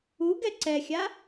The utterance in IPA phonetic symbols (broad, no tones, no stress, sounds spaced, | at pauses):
u ɡ ɛ ǀ ɛ xʲ a